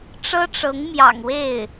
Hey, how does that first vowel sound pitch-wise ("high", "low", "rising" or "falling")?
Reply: high